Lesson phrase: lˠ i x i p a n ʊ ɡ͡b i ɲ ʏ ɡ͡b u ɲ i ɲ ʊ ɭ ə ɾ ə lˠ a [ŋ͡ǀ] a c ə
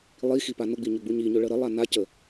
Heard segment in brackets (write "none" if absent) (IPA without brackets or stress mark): n